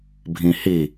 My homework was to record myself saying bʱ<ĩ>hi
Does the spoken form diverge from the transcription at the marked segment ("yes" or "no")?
no